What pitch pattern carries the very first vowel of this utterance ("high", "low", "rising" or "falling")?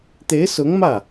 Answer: rising